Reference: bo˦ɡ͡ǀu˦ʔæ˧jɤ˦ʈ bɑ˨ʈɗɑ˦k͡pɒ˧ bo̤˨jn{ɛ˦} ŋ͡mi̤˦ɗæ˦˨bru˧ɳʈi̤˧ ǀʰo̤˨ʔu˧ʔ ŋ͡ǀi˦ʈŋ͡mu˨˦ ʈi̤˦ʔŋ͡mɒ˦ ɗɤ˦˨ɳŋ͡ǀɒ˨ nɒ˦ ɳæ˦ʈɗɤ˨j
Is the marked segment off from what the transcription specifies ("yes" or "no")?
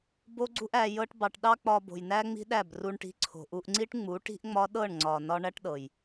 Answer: yes